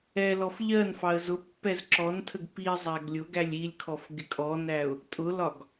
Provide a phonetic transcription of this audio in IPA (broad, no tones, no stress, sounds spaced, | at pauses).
ɛ l ɔ f ʎ ɜ n f ɑ ə̯ z ʊ pː ɛ z ǁ ɔ n tʰ ə ɡ p i zˤ æ ɡ lʲ ʊ ɡ æ lʲ i lʲ kʰ ɔ f ɡ ɪ kʼ ɔ n æ ʊ̯ | tʼ ʊ l ɒ ɡ